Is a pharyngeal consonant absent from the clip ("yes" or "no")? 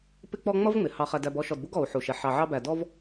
no